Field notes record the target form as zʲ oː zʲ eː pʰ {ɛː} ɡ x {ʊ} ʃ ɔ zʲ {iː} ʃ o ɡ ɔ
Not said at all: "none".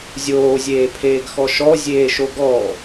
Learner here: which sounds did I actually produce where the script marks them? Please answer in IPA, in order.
eː, ɔ, eː

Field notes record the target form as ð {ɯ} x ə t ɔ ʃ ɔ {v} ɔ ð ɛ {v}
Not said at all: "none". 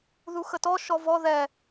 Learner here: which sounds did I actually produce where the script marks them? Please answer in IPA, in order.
u, v, none

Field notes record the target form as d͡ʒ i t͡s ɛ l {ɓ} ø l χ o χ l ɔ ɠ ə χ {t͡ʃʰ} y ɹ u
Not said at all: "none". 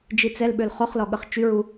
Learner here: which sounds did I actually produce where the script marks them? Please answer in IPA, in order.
ɓ, t͡ʃ

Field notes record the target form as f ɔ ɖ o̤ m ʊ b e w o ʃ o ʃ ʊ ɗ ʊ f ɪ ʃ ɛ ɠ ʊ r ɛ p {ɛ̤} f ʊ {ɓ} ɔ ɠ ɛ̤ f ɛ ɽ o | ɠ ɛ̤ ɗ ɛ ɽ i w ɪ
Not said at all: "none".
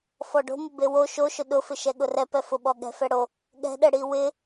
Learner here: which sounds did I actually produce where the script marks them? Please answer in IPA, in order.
ɛ, ɓ

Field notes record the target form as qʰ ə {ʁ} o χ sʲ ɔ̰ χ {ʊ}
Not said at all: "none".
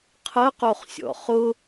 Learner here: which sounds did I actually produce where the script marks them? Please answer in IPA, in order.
q, ʊ

